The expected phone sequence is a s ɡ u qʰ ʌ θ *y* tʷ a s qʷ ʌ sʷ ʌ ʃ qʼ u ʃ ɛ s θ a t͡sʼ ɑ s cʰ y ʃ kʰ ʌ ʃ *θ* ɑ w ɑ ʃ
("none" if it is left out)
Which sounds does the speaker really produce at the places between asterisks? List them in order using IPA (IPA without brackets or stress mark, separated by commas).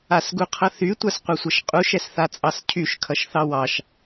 y, θ